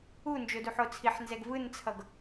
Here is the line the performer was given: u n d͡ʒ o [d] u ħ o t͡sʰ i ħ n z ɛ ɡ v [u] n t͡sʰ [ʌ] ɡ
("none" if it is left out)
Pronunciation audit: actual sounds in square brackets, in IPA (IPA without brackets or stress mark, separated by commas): d, ɯ, ʌ